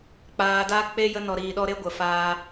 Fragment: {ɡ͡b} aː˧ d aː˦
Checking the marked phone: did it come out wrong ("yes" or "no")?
yes